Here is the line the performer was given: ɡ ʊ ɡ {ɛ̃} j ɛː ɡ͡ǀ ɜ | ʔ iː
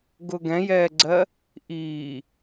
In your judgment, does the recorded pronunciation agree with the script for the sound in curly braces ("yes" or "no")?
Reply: yes